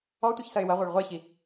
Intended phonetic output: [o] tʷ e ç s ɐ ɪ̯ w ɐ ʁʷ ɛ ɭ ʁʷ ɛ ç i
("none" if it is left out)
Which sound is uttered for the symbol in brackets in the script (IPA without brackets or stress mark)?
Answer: ɔ